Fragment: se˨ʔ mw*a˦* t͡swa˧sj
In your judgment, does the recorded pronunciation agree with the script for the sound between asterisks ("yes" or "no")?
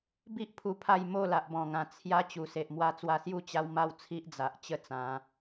no